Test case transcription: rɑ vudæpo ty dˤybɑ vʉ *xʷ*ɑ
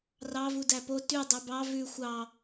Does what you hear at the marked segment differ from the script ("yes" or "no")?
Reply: no